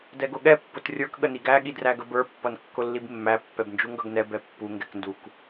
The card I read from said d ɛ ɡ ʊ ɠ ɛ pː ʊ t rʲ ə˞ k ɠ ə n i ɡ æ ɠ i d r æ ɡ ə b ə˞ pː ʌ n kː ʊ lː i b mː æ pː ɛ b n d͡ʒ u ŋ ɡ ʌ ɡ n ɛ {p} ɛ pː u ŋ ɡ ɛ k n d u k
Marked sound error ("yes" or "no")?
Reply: yes